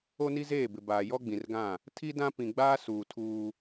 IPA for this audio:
o˦ n i˦ z eː˦˨ b ɪ˨ b aː˨ j ɔ˦ ɡ͡b ĩ˨ r ɡ ã˦˨ | tʰ i˦ d ã˦ p ĩ˨ ɡ͡b aː˦ s uː˨ tʰ uː˦

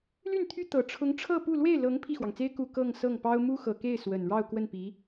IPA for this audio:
l y˥˩ n t̪ʰ y˥ t̪ ɤ˨˩ ʈ͡ʂʰ ʊ˧˥ ŋ ʈ͡ʂʰ ɤ˥˧ p u˥˧ l w e˥˩ ɪ̯ l ɤ˧˥ ŋ pʰ i˥˩ x w ɑ˩ ŋ t͡s e˥ ɪ̯ k u˥˧ k ɤ˥˧ ŋ s ɤ˥˩ ŋ p ɑ˥ ʊ̯ m u˥ x ɤ˨˩ k e˥˩ ɪ̯ s w ə˨˩ n ɻ ɑ˥˧ ʊ̯ k w ə˥˩ n p i˧˥

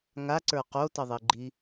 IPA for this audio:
ŋ a ǀ ə˞ q o t ʌ ðˤ i ɡ͡ǃ i

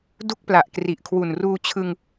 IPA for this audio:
d u˥˩ k̚ p l a˨˩ ʔ k r i˨˩ ʔ kʰ w u˨˩ n r uː˧ t͡ɕʰ ɯ˧ ŋ

